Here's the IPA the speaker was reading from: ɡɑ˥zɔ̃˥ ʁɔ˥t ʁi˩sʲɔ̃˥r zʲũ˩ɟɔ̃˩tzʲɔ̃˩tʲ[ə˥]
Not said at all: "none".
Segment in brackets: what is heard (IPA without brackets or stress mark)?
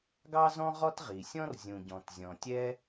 ɛ˥